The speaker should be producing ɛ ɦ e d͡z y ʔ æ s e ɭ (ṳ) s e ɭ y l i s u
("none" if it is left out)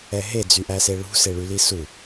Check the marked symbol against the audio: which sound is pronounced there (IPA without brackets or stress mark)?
ṳ